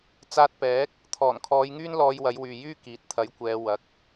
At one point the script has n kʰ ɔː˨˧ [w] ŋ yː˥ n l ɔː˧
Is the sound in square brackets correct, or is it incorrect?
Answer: incorrect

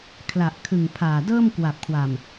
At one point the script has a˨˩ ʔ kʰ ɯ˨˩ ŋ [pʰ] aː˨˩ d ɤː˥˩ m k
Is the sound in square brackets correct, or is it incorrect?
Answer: correct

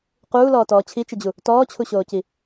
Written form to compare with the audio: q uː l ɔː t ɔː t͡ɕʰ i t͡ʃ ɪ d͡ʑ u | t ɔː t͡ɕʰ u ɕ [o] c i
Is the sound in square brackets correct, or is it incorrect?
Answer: incorrect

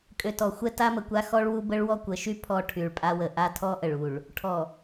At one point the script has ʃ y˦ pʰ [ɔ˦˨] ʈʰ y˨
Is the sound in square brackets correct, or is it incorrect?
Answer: correct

